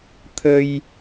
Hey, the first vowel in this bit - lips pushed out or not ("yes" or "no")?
no